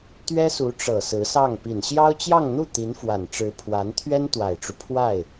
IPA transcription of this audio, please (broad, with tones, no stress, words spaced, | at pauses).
t̪ɥɛ˥su˧˥ʈ͡ʂɤ˨˩ sɹ̩˧˥sɑ˥˩ŋ pi˨˩nɕjɑ˥ʊ̯t͡ɕjɑ˥˧ŋn̪u˥˩ t̪i˧˥nfwa˨˩nʈ͡ʂɻ̩˧˥ pʰwa˧˥n t̪ʰɥɛ˥nt̪wa˨˩ɪ̯ʈ͡ʂu˦ pʰwa˥˩ɪ̯